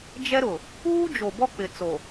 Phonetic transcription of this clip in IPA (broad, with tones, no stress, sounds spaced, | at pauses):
d͡ʒ ɛ˦ ɾ ʊ˨ | uː˦ d͡ʒ o˨ b ɔ˦ k͡p ɪ˨ t͡s o˨